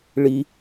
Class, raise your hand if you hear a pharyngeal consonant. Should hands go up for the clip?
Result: no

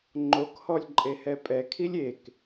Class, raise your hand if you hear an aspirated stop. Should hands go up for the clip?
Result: yes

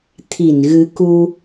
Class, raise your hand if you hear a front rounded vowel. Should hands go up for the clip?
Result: no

